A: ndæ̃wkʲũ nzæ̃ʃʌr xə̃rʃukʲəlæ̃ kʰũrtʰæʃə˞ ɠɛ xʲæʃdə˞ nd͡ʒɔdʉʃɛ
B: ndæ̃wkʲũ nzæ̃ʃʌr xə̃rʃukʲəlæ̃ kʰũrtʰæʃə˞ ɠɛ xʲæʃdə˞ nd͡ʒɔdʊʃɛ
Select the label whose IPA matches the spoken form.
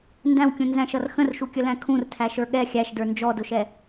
B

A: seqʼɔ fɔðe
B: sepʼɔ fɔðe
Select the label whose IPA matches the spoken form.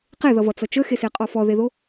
A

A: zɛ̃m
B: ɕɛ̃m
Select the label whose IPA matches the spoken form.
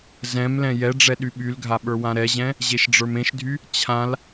A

